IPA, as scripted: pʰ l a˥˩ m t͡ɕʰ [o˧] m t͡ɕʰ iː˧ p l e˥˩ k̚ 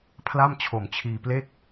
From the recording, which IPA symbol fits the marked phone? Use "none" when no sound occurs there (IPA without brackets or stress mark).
o˨˩